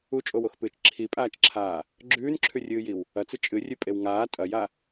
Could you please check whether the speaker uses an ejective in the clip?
yes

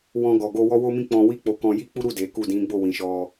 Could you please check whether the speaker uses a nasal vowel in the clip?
yes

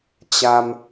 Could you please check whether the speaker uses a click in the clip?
no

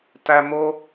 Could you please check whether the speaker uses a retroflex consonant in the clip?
no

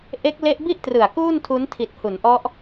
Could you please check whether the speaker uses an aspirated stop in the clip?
yes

